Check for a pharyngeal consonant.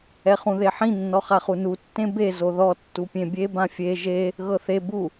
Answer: present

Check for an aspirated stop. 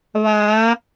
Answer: absent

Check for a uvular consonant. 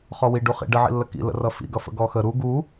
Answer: present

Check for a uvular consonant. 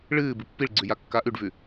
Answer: absent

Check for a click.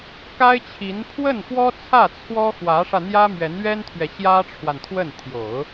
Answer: absent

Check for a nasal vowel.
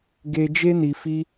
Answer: absent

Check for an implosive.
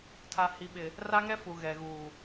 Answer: present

